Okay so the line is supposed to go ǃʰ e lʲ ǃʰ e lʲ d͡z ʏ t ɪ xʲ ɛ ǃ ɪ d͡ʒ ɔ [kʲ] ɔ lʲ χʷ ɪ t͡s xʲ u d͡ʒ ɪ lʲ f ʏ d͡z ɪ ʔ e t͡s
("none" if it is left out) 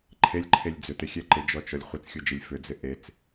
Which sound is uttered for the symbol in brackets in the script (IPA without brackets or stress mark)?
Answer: t͡ʃ